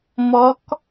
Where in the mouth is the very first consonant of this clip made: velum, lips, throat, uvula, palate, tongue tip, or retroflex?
lips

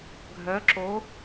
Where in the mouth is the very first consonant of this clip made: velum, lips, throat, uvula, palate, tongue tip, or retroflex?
velum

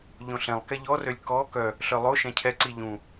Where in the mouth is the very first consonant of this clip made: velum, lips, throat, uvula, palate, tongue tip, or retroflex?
palate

